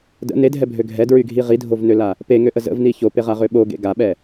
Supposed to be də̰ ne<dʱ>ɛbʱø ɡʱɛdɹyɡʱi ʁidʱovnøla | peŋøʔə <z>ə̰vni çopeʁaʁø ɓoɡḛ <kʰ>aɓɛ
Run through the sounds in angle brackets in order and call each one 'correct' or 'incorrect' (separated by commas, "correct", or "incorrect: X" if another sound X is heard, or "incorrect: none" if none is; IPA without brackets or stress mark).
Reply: correct, correct, incorrect: ɡ